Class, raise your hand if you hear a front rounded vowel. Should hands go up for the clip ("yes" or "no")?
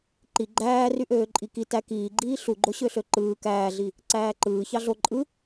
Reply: yes